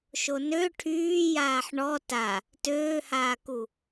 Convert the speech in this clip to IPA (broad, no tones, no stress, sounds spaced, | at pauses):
ʃ o n ø ʈʰ yː j aː ħ ɳ ɔ t a | t øː h aː k u